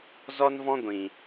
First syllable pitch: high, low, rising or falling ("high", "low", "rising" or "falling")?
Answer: high